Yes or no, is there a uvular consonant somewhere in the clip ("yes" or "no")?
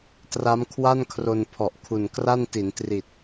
no